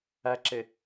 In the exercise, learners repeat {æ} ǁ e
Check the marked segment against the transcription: correct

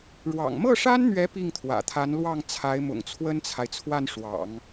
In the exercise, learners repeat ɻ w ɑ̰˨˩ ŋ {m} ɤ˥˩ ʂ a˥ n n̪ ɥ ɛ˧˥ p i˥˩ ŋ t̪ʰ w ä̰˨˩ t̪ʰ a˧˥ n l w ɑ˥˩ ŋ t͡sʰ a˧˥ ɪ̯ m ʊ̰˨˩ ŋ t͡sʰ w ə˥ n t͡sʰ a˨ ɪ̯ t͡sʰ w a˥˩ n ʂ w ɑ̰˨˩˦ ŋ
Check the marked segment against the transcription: correct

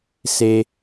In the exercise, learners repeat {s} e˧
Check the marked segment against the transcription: correct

